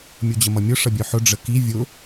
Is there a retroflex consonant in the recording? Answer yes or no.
yes